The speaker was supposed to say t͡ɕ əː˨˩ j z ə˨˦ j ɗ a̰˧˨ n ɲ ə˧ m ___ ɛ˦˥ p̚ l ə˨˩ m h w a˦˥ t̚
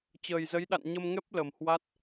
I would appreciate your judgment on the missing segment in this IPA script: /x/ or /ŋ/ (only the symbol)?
ŋ